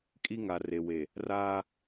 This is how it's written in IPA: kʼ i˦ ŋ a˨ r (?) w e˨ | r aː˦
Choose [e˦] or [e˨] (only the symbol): e˨